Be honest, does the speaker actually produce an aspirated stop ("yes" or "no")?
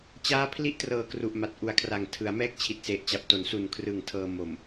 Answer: yes